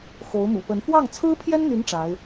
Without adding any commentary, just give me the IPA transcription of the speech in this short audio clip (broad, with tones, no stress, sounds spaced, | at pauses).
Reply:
x o˧˥ ʊ̯ m ṵ˨˩ p ə˧˥ n f w ɑ˥˩ ŋ t͡sʰ ɹ̩˥ pʰ j ɛ˥ n n̪ y˧˥ n ʈ͡ʂ a˧˥ ɪ̯